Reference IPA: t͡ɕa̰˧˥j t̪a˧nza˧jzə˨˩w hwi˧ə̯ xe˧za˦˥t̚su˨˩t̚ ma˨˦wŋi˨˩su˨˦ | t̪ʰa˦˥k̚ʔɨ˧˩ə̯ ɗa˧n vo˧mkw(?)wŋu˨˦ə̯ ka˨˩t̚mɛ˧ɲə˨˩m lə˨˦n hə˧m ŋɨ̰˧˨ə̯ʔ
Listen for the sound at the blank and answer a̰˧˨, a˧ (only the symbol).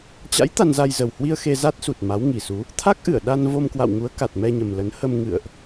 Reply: a̰˧˨